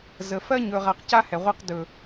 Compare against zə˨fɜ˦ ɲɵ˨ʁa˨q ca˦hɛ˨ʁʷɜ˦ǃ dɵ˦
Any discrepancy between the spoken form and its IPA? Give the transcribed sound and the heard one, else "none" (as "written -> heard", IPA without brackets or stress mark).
ǃ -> q